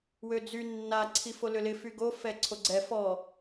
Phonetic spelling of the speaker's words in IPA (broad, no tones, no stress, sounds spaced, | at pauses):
w ø d͡z y nː a ǀʰ i f o l ʏ l ɪ f y ɡ o f ɛ ǀʰ o ɡ͡ǀ ɛ f ɔ